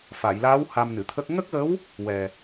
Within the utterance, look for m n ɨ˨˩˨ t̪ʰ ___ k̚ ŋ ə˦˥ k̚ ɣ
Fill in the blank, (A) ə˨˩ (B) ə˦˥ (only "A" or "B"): B